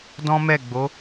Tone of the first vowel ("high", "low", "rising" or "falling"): high